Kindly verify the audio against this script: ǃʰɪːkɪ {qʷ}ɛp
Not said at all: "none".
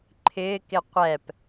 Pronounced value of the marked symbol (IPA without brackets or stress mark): qʷ